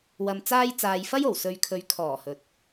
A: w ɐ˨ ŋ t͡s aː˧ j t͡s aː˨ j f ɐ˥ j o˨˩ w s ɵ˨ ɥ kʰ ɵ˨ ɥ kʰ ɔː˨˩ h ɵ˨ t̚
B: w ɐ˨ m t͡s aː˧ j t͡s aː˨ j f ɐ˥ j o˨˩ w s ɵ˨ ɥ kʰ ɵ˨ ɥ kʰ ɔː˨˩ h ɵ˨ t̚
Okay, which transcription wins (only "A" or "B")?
B